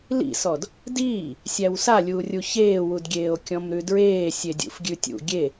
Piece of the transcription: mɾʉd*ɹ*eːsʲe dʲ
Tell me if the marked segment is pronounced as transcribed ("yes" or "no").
yes